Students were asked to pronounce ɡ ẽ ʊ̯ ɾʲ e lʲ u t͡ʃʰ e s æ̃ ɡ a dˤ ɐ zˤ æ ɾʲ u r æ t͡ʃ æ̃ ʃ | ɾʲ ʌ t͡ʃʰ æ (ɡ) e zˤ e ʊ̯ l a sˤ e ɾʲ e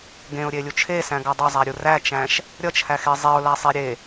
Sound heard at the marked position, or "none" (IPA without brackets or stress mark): x